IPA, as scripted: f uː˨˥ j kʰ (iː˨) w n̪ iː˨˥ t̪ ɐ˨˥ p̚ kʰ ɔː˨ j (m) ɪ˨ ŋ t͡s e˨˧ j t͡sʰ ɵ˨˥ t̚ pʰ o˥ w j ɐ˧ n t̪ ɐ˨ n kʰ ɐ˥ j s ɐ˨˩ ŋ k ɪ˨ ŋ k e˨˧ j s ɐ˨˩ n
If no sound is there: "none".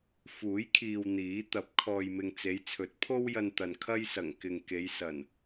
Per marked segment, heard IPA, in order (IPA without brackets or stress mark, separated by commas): iː˨, m